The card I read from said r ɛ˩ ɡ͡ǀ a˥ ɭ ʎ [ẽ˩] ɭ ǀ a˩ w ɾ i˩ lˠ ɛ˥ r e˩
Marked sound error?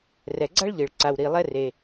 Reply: yes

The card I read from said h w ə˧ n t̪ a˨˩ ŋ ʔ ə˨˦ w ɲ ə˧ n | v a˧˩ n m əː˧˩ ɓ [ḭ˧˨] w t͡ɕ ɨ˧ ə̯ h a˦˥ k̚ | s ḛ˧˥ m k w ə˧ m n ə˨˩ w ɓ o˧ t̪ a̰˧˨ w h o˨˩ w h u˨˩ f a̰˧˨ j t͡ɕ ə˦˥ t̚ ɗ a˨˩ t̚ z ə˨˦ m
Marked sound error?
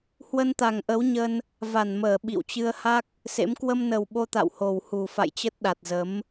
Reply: no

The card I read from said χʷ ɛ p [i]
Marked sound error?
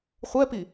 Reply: no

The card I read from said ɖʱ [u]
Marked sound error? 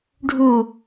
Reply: no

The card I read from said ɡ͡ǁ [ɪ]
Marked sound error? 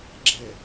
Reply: yes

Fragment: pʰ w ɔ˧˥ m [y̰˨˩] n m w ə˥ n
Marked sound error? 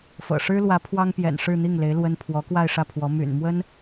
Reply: no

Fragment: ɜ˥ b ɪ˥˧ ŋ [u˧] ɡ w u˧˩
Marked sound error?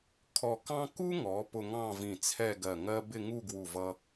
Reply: yes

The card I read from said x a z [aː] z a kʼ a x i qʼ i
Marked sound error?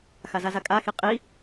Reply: yes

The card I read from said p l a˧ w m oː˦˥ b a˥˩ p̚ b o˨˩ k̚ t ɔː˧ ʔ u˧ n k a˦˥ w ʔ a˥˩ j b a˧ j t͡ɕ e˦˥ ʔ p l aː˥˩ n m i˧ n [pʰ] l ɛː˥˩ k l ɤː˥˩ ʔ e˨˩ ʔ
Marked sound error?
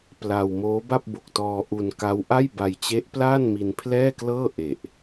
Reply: no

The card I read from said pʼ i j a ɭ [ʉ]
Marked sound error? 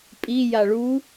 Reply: yes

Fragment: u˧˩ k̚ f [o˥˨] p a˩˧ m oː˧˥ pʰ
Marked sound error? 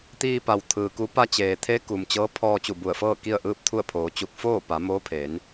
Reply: yes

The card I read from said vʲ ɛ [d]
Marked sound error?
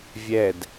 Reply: no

